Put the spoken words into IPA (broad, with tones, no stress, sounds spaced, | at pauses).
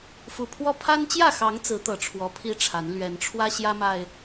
f u˨˩ pʰ w ɔ˦ pʰ a˦ n t͡ɕ j ä˥˨ x ɑ˨˦ ŋ t͡s ɹ̩˨˦ t̪ ɤ˨˩ ʈ͡ʂʰ w ɔ˨˦ pʰ i˦ ʈ͡ʂʰ a˨˦ n l ɥ ɛ˨˦ n ʈ͡ʂʰ w ä˦ ɕ j ä˦ m a˨˩ ɪ̯